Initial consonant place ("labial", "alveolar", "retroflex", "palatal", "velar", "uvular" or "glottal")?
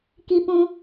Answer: velar